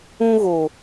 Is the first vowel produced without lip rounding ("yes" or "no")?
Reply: no